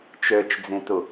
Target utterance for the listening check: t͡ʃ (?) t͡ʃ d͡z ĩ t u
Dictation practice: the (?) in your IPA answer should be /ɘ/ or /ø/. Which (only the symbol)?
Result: ø